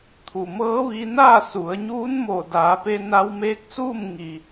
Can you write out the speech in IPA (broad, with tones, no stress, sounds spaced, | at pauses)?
t̪ʰ u˩ m ɤː˧˥ ʋ i˧ n aː˥˨ s u˩˧ ə̯ ɲ uː˧˥ n m o˧˩ d aː˩˧ p e˧ n a˧ w m eː˧˥ k̚ s uː˥˨ m ŋ i˩